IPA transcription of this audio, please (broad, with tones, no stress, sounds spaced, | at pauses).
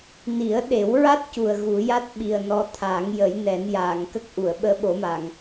n i˨˩˦ ə̯ ɗ e˨˩˦ w ɹ a˦˥ t̚ c u˨˩ ə̯ ɣ u˨˩˦ j a˦˥ t̚ ɓ i˨˩ ə̯ n ɔ˧˥ t̪ʰ aː˨˩˦ ŋ j ə˨˩˦ j n ɛ˨˩˦ n j aː˨˩˨ ŋ k ə˦˥ k̚ ʔ u˨˩˨ ə̯ ɓ əː˧˥ ɓ o˨˩˦ m a˨˩˨ ŋ